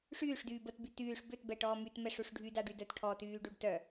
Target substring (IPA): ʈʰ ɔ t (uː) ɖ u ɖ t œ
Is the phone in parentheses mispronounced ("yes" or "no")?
yes